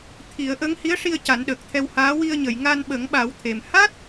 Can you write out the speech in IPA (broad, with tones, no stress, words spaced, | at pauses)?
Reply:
t̪ʰi˨˩˦ə̯ʔə˧˥ŋ hi˧˥ə̯ʂi˧ə̯ ca˨˩˦nɗəː˨˩k̚t̪ʰɛ˧whaː˧˥ wi˧ə̯ɲə˨˩˨j ŋa˧nɓə˨˩˦ŋɓa˨˩˦wt̪ʰe˨˩m ha˦˥t̚